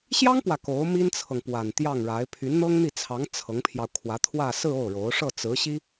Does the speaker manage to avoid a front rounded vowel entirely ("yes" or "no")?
no